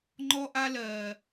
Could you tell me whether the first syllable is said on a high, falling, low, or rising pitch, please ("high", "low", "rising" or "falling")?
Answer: high